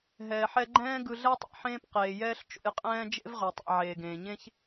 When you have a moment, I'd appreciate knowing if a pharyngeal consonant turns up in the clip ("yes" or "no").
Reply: yes